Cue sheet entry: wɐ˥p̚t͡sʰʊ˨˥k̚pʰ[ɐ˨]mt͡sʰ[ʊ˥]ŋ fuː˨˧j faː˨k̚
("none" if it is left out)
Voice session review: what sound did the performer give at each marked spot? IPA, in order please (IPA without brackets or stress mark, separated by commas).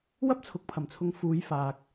ɐ˨˩, ʊ˨˧